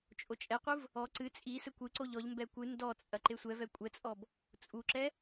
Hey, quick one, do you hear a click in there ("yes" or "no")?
yes